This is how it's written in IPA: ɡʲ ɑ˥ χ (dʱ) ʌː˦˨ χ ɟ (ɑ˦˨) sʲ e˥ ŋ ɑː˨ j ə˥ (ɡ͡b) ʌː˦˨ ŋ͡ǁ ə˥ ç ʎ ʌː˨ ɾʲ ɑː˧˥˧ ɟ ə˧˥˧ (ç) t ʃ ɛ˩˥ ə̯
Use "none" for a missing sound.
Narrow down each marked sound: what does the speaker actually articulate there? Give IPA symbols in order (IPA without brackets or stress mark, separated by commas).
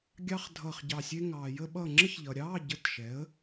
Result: dʱ, ɑ˦˨, ɓ, none